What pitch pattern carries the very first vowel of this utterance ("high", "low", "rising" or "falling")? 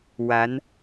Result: rising